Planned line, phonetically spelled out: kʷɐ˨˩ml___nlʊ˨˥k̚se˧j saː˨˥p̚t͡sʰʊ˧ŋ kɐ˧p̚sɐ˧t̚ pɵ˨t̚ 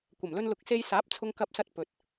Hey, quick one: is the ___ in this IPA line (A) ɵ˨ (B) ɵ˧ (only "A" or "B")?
B